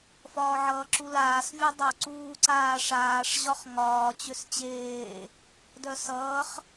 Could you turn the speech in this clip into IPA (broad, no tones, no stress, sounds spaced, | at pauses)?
f ɒː ʕ ʌː ǁ u l aː s vʲ u dˤ o ǀ uː ǀ aː ʂ aː ʂ ʑ ɒ χ ŋ ɒː t͡ɕ ʏ s t͡ɕ eː | d œ s ʌː χ